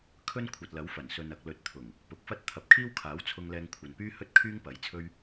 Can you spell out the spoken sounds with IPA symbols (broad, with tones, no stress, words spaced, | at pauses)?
kʰɵ˥n kʷʰɐ˨t̚lɐ˨˥wfɐ˨˩nsɵ˨n ɐ˨k̚lɵ˨˥t̚t̪ʰʊ˨˩ŋ | pʊ˨˥k̚fɐ˥t̚ t̪ʰɐ˨p̚kʰiː˥wkʰaː˨˥w t͡sʰʊ˧ŋlɛː˧ŋ kʷʰɐ˨npyː˥ hɵ˥t̚kʰyː˥ŋpɐ˨˥jt͡sʰɵ˥ɥ